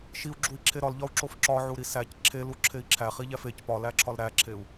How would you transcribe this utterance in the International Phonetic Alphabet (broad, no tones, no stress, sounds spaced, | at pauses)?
ʃ i u̯ ɡ͡ǁ u i̯ ǁʰ e ɾ ɒ l ʎ ɒ u̯ ǁ o f ǁ ɒ ʕ u ɾ i s æ c ǁʰ e l u ǁʰ e i̯ ǁʰ æ χ i ʎ æ f e c p ɒ l æ ǁʰ ɒ l ɾ æ ǁʰ e u̯